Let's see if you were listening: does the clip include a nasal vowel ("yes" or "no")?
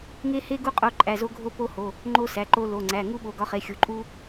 no